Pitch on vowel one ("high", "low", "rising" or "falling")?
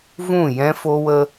falling